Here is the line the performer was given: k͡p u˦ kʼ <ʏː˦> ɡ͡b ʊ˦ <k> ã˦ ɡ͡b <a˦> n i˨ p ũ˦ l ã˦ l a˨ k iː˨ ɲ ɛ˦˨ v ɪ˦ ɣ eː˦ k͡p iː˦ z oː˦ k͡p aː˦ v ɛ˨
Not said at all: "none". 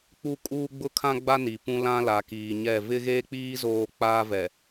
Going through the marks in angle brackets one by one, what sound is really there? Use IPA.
uː˦, kʰ, a˦

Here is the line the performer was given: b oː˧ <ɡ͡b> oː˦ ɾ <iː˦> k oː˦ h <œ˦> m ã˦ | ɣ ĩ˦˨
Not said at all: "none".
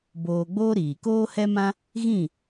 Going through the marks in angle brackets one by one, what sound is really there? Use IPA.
ɡ͡b, iː˨, ɛ˦

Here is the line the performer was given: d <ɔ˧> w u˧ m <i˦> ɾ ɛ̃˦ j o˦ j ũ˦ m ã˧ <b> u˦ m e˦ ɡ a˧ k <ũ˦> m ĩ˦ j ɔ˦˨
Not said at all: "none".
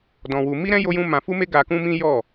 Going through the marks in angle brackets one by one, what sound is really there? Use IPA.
ɔ̃˧, i˦, f, ũ˦

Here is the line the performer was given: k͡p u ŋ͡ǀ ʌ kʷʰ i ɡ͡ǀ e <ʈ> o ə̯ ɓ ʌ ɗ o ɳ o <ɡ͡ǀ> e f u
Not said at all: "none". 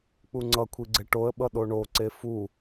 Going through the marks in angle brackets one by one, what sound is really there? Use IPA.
ʈ, ǀ

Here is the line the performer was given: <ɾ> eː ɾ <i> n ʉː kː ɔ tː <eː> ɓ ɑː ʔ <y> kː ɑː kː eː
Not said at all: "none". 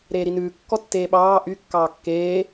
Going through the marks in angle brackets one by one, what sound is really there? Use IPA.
ɾ, i, eː, y

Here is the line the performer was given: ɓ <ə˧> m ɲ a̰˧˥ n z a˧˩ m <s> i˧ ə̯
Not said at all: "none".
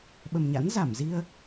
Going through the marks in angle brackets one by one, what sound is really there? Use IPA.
ə˨˩, z

